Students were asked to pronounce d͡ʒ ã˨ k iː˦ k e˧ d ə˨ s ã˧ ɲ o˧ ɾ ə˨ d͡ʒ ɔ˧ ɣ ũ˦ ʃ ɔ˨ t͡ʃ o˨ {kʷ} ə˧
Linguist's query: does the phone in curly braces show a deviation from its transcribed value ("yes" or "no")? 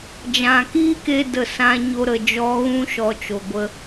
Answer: yes